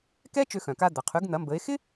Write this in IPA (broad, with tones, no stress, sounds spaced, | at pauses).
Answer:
k ɛ˥ t͡ʃ ø˧ x œ̃˩ k a˧ d̪ ɐ˩ qʰ y˩˥ ɡ n̪ ɐ˩˥ m b ə˩˥ e̯ x ɪ˥